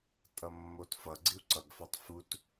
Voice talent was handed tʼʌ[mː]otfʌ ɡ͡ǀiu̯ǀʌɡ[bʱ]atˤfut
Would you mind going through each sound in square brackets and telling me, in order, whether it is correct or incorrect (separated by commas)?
correct, incorrect